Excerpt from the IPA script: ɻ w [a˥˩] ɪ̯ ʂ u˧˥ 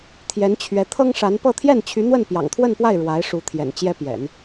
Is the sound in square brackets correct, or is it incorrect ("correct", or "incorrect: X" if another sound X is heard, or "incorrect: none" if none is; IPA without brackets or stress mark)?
incorrect: a˧˥